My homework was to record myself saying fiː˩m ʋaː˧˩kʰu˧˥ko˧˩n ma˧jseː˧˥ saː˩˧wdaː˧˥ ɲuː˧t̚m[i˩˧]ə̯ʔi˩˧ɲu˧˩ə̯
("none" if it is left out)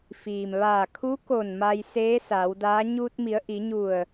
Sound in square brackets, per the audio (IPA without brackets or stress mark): i˩˧